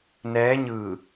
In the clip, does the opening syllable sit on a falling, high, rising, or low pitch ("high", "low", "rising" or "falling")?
rising